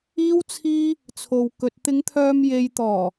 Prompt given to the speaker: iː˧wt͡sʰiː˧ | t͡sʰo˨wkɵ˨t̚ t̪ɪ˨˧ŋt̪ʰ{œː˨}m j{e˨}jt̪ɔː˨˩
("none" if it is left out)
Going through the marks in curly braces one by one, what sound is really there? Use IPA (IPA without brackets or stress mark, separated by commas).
œː˨, e˨